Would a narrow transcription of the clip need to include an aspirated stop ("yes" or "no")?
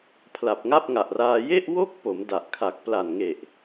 yes